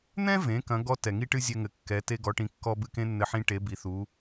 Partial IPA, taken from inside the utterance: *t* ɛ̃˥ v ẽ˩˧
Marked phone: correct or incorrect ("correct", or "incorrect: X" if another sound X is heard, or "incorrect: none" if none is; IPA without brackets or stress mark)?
incorrect: n̪